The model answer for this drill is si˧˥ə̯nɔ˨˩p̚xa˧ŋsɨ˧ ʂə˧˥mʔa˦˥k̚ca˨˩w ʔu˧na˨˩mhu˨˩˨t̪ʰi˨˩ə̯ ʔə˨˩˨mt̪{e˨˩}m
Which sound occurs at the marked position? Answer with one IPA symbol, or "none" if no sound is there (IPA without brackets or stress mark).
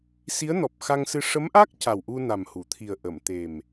e˨˩